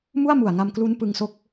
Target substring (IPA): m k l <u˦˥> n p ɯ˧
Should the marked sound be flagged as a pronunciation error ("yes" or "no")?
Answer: no